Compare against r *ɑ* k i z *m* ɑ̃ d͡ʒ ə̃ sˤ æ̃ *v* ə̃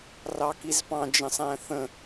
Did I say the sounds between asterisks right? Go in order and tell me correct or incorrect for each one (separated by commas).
correct, incorrect, incorrect